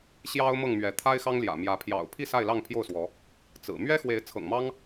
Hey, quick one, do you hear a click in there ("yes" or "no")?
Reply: no